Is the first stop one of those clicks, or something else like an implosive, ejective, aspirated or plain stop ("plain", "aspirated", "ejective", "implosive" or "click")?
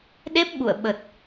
implosive